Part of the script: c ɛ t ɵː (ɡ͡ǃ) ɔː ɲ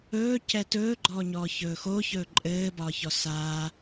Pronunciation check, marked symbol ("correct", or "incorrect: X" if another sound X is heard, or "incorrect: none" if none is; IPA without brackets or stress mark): correct